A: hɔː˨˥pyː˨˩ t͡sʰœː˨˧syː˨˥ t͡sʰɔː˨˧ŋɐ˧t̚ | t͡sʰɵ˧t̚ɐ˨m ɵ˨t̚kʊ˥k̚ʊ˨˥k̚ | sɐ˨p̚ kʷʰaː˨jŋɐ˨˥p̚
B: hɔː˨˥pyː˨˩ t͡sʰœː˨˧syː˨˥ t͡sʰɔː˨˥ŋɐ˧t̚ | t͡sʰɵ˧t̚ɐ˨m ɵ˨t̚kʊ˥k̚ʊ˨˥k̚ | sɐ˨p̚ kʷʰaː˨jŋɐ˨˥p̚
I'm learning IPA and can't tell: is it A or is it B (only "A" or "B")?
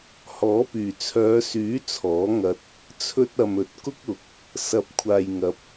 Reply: B